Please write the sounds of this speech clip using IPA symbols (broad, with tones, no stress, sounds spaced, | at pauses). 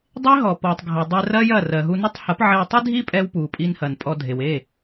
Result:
dˤ e˦ ɦ ɔ˨ p ɔ˨ tˤ ɡʱ ɐ˨ dˤ ɛ˧ r ɐ˦ j ɐ˦˨ r ɜ˨ ɦ u˧ n u˦ tˤ h ɐ˨˦ p ʕ ɛ˧ w tˤ i˦ dʱ i˦ pʼ ɛ˧ w p u˨ pʼ i˧ n h ɐ˨ n pʼ ɔ˧ dʱ e˨ w e˦˨